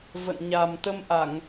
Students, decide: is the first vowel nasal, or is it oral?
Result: oral